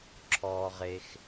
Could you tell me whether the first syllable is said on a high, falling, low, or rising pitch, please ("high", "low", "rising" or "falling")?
low